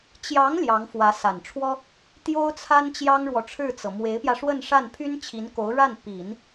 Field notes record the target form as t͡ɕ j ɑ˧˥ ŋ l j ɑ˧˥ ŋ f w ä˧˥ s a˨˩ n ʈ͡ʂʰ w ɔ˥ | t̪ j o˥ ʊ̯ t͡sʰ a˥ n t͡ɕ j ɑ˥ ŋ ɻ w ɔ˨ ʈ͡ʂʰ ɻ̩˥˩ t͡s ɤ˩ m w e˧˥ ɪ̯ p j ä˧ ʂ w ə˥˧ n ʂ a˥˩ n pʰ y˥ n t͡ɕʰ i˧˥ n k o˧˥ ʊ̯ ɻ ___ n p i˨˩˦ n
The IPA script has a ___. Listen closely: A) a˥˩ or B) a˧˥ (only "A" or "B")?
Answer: A